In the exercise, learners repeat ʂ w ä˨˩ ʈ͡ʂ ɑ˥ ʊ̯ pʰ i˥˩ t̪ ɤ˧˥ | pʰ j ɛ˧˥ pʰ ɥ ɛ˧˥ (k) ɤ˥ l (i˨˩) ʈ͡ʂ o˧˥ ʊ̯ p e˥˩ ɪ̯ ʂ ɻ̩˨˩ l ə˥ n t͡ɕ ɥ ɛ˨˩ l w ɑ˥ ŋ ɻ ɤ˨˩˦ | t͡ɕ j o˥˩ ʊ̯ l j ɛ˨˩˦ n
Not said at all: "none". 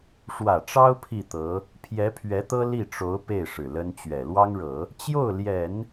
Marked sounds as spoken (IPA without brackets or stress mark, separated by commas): t̪, i˥˩